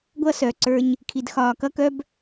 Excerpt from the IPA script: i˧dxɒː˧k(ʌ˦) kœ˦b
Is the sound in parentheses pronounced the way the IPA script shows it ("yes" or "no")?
yes